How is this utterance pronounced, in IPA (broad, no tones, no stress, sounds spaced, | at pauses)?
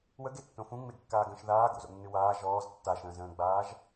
w ə ɡ e tː õ f ũ ŋ͡m e ɡ kː aː ɡ ə̃ː ʃ ð aː ɡ o̰ z o̰ nː ɨ w aː ʒ ɔː z tː a ʃ ə̃ː z ə̃ː ɡ͡b aː ʒ